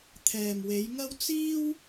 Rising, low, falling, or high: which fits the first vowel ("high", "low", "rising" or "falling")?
low